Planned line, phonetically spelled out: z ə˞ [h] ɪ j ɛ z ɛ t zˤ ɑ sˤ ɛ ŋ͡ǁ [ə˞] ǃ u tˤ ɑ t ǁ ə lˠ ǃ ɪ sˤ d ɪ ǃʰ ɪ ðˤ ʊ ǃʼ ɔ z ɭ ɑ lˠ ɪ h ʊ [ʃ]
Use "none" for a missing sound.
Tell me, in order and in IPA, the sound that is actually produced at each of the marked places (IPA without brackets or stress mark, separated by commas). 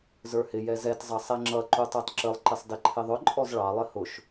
h, ʌ, ʃ